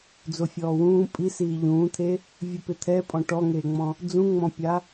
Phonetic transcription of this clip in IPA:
d͡z o fʲ ɔː w ũː pʼ i s iː ʎ ũː t̪ʰ e | vʲ u p ɪ t̪ʰ ɛ pʼ ɔ̃ ʈ ɔ ŋ eː ŋ͡m ɔ̃ | d͡z ũ ŋ͡m ɔ̃ pʲ a

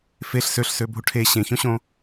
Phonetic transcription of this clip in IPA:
f e ɬ s ø ɬ s ø bʱ u ʈʰ e ɕ ẽ ç õ ɕ õ

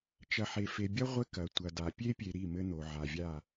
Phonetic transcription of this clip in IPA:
t͡ʃ ɐ˨ ħ e˨ f e˨ bʲ ɐ˦ ʁʷ ɘ˦ k ɐ˨ tʷ ɐ˨ d a˨ pʲ e˦ pʲ e˨ ɾ i˦˨ m ɘ˦ n̪ o˨ ʕ a˨ vʲ a˦˨

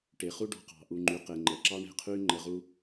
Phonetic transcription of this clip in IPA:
ʈ e˨ χ u˦ ɖ ɔ̤˧ q ɑ̤˨ ʔ u˨ ŋ͡ǃ y˨ q e˨ ŋ͡ǃ ə˨ ǁ ɑ˦ ɳ e̤˧ qʰ y˦ ŋ͡ǃ ə˧ ʁ u˦

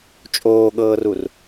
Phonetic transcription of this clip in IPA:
t͡ʃʼ oː ɠ ɤː r u r

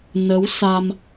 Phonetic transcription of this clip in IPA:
n ə˨˦ w s a˧ m

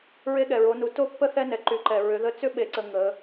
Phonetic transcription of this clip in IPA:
ɹ e˧ ɠ ɛ˩ ɹ o˩˧ n u˩˧ t o˥ pː ə˥ θ ɛ˧ n ɛ˩ ǃ y˩˧ ǃ ɛ˩ ɹ ʏ˩˧ ð ə˧ t͡s ʏ˥ ɓ e˧˥ ǀ ə˧ ŋ ə˩˧

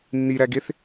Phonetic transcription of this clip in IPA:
nː i ɾ æ ɡ e θ

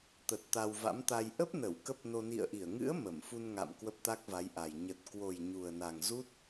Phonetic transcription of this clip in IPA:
t̪ ə˨˩ t̚ t̪ a˧ w v a̰˧˥ m t̪ a˧ j ʔ ə˦˥ p̚ n ə˧˩ w k ə˦˥ p̚ n o˧ n ḭ˧˨ ə̯ ʔ i˧˩ ə̯ ŋ ɨ̰˧˥ ə̯ m ə˧˩ m f u˧ n ŋ a̰˧˨ m k w ə˦˥ p̚ t̪ a˦˥ k̚ v a˨˦ j ʔ a˨˩ j ɲ ə˨˩ t̚ k w o˨˩ j ɲ u˨˩ ə̯ n a˨˩ ŋ z u˦˥ t̚

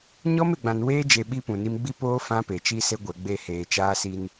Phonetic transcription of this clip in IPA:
ɲ ɔ˦ m e˨ ɡ͡b ã˨ n w eː˦ d͡ʒ e˨ ɓ i˦ p ũ˨ n i˦ m ɡ͡b i˦ p oː˦ f ã˦ p e˨ t͡ʃ i˦ s e˦ ɡʷ ɛ˨ ɡ͡b e˦˨ h eː˨ t͡ʃ aː˦ s i˦ n

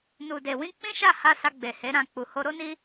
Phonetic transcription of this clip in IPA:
n u˨ d e˨ w ĩ˧ k͡p ĩ˦ ʃ a˦˨ h a˧ s a˧ ɡ͡b e˨ h e˨˦ ɾ ã˦˨ k͡p u˨ h o˧ ɾ o˦ n i˦

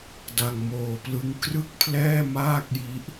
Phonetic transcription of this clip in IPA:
d a˧ ŋ m oː˧ p l ɯ˦˥ ŋ k r ɯ˥˩ k̚ pʰ l ɛː˥˩ m aː˥˩ k̚ j i˦˥ ʔ

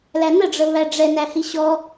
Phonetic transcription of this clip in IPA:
l æ n ə ɖ͡ʐ ə β æ ɖ͡ʐ ɛ n æ h i ɕ ɔ

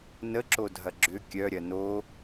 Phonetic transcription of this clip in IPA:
n ə ǁ o dʱ ɐ ɡ͡ǁ ʏ kʲ œ ɾʲ ɐ n o

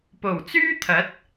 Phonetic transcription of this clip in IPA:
p o˨˩ w t͡s yː˥ t̪ʰ ɐ˨˥ t̚

